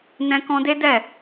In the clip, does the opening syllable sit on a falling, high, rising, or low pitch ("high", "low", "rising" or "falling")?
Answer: high